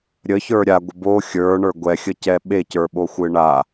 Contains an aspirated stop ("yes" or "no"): no